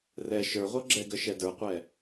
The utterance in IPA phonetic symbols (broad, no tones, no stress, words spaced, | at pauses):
rɛ ʃə˞ʁʷɤ ɡ͡ǁɛɡə ʃɛdə˞qʷɛ